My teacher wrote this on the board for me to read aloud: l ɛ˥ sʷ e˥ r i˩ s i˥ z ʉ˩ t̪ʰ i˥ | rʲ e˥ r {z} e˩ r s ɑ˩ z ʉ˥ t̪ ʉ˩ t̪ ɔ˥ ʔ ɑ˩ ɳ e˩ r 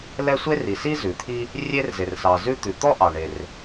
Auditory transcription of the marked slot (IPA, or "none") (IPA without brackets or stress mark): z